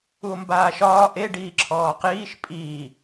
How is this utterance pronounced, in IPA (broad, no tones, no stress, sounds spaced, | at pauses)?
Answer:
u o̯ m b aː ʃ ɒː ʔ e ɖ iː ǁʰ ɔː q iː ʃ pʼ iː